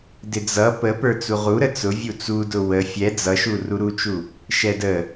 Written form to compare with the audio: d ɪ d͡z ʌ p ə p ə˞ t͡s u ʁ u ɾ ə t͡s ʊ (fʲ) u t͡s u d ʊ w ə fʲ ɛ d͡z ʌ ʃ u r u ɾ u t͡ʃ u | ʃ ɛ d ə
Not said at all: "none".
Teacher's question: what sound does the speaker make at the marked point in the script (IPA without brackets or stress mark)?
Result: vʲ